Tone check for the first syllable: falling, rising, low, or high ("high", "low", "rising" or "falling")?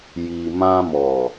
low